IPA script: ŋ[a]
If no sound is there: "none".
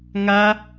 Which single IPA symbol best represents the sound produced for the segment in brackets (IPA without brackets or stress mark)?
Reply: a